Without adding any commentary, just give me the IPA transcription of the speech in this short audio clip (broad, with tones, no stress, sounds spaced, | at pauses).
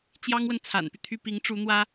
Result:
t͡ɕ j ɑ˥ ŋ w ə˨ n t͡sʰ a̰˨˩ n p y˦ t̪ʰ y˥˩ p i˧˥ ŋ ʈ͡ʂ u˧˥ n̪ w ä˥